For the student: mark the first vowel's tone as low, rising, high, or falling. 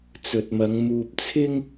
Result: low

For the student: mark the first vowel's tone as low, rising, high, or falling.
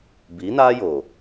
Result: rising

